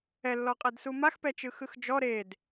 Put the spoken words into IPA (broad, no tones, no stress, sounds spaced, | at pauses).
ɛ lː ɔ qʼ ɛ d s u m a x p ɛ t͡ʃ ɯ x ɯ x d͡ʒ ɔ ɾ e d